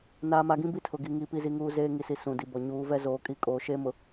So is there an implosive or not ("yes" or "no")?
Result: no